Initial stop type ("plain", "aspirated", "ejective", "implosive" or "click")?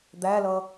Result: plain